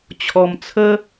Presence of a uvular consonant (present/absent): absent